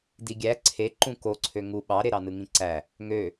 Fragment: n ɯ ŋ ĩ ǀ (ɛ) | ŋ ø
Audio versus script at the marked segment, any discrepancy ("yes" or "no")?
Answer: yes